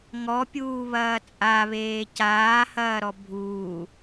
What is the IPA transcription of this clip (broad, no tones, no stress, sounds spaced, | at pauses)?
ŋ ɔ pʲ uː β ɐː t͡sʼ a β eː c aː h ɐː ɾ ɔ bʱ uː